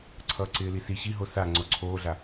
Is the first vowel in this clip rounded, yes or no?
no